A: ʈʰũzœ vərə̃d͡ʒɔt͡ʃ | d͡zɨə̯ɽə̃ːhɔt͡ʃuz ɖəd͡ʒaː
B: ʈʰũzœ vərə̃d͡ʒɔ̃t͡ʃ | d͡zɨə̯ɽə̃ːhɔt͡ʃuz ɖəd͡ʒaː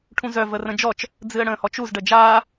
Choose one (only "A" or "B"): A